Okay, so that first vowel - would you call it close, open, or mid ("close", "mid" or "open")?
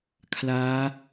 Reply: open